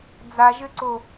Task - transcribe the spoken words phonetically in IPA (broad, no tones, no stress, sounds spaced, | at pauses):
d͡z a ʒ ɘ ǀ o